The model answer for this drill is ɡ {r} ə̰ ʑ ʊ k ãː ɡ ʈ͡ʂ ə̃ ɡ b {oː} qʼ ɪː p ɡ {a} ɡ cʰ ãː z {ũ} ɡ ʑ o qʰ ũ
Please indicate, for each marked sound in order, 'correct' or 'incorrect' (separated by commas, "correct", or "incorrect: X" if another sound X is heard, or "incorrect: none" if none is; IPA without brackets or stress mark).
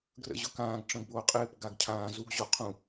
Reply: correct, correct, correct, incorrect: u